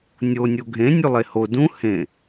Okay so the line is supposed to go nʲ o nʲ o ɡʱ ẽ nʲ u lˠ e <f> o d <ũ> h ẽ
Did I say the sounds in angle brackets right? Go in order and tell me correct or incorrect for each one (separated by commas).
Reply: incorrect, correct